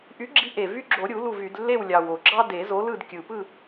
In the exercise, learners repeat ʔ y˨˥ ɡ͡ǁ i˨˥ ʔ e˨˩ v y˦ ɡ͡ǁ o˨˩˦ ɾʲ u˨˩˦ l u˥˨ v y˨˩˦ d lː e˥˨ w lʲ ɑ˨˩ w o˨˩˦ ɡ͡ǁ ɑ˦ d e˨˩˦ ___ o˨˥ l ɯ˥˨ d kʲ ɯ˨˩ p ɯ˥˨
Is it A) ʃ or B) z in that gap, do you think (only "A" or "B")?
B